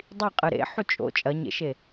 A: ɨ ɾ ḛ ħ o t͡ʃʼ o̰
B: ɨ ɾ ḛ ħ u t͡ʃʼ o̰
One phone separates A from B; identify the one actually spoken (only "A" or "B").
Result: B